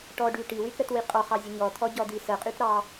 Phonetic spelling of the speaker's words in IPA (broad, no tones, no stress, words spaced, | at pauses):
ʈɔɖy ʈiwytɾətwi qʼɔχɑzʲə ɲɔt̪ʰɔɟɔd̪i səqʼytɾɑ